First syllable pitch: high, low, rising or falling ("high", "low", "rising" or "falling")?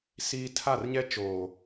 high